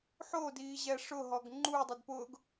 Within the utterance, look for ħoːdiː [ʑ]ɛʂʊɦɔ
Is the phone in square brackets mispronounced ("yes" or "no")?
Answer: no